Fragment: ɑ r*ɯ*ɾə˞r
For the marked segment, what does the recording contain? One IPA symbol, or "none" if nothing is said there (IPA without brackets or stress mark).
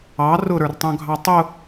ʊ